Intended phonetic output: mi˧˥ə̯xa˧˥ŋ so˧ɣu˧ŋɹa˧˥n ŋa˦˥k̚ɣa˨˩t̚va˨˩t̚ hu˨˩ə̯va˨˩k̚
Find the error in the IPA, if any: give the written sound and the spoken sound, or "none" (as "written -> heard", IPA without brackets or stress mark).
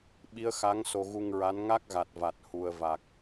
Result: m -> ɓ